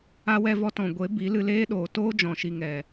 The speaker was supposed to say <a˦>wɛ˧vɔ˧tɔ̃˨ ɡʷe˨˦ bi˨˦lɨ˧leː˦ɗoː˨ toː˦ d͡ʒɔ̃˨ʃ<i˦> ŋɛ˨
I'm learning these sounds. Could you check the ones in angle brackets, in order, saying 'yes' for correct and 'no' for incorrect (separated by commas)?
no, no